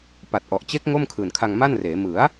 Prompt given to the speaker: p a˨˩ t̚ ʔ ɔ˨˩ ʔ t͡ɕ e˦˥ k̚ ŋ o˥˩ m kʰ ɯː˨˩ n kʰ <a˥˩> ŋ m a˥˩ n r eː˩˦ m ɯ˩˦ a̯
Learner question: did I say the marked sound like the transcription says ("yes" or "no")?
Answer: no